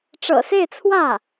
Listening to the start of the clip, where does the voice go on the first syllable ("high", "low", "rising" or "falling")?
low